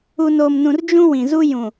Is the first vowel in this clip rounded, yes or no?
yes